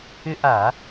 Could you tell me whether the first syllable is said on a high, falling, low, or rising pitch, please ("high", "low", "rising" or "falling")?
high